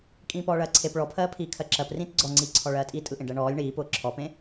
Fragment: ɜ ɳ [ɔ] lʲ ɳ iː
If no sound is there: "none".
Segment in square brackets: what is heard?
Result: ɔː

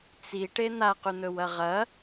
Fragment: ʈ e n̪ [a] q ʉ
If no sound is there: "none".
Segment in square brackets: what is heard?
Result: a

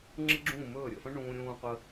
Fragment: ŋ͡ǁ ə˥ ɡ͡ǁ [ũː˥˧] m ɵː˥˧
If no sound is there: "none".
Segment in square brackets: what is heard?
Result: ũː˥˧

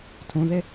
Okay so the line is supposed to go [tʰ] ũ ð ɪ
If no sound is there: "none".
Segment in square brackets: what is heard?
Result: tʰ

